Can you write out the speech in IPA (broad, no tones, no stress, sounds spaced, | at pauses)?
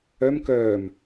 œ m k œː m